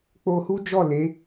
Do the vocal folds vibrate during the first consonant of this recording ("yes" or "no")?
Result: no